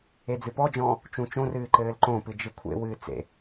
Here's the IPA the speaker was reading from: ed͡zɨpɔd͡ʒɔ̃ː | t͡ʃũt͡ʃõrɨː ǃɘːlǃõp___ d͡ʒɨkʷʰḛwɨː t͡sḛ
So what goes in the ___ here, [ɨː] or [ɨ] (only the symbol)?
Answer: ɨ